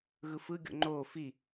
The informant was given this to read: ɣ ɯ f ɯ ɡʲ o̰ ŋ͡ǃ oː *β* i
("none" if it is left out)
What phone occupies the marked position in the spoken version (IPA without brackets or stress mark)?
f